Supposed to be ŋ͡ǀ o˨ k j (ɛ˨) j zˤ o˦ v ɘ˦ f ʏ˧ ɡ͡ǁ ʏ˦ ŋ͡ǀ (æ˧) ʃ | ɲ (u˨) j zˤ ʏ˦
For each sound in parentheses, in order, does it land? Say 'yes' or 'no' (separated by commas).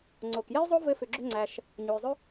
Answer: no, yes, yes